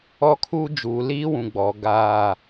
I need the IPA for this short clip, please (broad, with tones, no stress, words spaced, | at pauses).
ɔ˦kʰuː˦ d͡ʒuː˨liː˦wũ˨ ɡ͡bɔ˨ ɡaː˦˨